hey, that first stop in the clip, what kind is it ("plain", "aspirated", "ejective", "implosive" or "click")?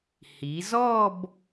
plain